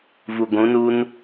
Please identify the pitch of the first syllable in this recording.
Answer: low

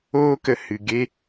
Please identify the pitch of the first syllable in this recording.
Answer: high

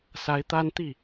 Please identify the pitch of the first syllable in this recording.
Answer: rising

